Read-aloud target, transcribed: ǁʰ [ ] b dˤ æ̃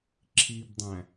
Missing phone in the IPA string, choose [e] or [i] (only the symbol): i